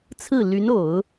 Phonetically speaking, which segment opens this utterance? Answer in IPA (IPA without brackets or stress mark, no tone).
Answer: t͡sʰ